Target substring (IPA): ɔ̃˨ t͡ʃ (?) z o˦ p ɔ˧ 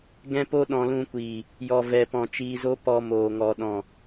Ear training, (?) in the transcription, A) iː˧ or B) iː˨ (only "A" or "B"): A